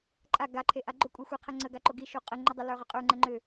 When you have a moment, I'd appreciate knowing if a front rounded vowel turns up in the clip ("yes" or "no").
yes